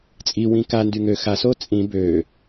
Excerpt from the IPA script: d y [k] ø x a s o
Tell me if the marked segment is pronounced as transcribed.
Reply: no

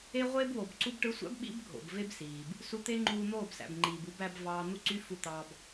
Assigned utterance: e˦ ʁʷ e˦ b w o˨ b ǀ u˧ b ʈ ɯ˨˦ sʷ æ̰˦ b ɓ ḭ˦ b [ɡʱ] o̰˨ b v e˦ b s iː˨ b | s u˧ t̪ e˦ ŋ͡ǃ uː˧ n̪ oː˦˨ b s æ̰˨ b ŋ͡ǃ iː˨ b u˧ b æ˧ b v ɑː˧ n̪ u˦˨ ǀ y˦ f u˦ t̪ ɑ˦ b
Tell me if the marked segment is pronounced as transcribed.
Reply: yes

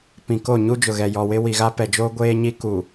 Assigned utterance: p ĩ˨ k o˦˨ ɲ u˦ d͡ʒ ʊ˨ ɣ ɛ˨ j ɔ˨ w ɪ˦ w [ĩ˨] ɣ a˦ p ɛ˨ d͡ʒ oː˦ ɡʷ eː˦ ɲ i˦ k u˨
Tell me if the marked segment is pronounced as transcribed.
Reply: no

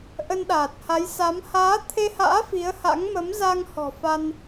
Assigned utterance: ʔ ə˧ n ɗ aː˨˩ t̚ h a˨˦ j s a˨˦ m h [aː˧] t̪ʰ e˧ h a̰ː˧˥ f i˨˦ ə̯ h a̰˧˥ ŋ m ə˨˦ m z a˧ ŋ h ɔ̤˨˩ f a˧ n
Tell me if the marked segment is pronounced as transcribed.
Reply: no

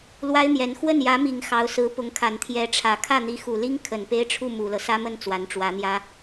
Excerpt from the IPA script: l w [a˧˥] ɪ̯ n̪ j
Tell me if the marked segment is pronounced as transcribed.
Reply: no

